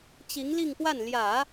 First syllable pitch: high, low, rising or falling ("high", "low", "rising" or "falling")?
rising